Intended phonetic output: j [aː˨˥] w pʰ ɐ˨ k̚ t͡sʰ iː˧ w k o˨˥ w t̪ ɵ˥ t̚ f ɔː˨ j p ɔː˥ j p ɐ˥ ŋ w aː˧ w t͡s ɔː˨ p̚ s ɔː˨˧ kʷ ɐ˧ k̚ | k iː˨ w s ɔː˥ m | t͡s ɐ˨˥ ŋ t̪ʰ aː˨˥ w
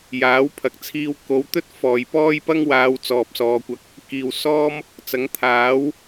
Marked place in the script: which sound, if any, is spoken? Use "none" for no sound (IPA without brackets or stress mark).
aː˨˥